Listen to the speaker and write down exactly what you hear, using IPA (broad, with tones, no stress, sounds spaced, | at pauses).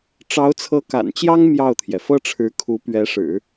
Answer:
ʈ͡ʂ ɑ˧˥ ʊ̯ t͡sʰ ɤ˧˥ k a̰˨˩ n t͡ɕ j ɑ˥ ŋ m j ɑ˥˩ ʊ̯ t̪ʰ j ɛ˩ f ɤ˥ ʈ͡ʂʰ ɻ̩˧˥ kʰ u˧˥ p ɥ ɛ˧˥ ʂ ɻ̩˨˩˦